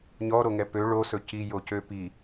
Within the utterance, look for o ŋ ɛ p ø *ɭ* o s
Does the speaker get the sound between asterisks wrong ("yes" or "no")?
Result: no